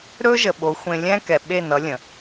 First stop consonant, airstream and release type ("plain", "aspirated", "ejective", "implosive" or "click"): implosive